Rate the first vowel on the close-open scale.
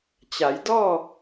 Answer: open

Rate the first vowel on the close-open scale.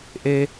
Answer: mid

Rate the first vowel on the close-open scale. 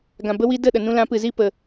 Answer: open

